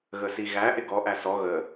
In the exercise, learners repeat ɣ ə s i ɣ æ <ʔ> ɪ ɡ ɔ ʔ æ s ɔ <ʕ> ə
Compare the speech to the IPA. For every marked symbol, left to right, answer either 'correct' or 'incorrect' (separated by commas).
correct, incorrect